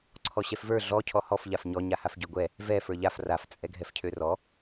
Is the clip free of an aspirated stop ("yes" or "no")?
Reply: no